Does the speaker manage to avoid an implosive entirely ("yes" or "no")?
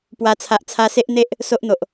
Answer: yes